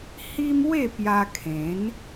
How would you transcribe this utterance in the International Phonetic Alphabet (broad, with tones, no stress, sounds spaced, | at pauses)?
h i˦ m w e˥˧ p j a˦ kʰ ẽ˨˦ n